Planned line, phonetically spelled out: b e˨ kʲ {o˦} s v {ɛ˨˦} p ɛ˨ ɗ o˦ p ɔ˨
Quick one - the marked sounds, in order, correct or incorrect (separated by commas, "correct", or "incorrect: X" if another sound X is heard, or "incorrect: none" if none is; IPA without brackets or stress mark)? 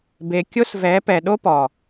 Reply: correct, correct